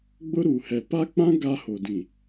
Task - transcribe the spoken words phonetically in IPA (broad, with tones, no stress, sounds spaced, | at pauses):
ɡ͡b ʊ˦ ɾ u˨ h ɛ˨ p a˦ k͡p ã˦ ɡ a˦ h o˨ d ĩ˨